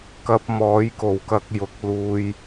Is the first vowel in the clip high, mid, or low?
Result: low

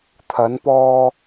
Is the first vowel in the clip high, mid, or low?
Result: low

